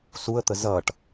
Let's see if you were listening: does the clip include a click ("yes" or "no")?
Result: no